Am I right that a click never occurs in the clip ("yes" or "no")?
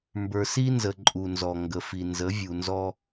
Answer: no